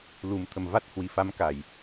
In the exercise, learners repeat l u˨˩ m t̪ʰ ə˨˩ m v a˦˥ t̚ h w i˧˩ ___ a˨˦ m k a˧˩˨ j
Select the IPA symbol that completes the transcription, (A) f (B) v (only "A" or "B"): A